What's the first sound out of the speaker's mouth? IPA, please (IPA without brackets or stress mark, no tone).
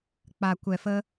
k͡p